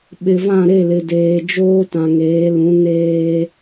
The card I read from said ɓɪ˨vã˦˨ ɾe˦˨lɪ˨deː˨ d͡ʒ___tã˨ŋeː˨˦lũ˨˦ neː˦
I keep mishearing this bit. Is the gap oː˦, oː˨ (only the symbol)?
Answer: oː˦